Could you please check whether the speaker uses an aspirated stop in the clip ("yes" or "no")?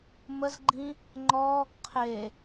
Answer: yes